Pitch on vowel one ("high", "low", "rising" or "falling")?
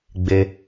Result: low